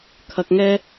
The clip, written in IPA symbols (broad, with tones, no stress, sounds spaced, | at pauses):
kʰ ɐ˧ k̚ ŋ ɛː˥